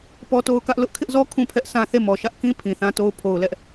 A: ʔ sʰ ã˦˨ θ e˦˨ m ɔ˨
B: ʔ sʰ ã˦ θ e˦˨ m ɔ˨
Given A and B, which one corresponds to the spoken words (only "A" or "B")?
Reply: B